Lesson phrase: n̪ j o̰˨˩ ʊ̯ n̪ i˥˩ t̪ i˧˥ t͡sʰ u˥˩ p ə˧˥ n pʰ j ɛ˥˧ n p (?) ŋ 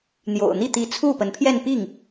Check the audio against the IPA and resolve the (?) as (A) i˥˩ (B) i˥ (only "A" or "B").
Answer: A